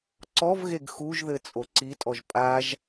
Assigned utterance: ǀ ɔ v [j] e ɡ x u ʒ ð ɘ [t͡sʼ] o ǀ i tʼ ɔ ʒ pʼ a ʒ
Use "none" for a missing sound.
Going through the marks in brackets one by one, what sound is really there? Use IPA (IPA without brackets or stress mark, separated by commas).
ɣ, t͡sʼ